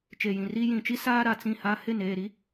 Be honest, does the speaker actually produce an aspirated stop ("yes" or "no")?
no